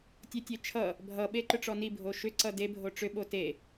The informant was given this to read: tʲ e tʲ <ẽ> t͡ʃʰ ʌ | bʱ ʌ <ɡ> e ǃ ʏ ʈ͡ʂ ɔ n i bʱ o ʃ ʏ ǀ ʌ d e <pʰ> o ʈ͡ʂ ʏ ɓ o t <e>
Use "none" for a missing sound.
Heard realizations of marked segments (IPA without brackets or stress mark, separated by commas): e, ɓ, bʱ, e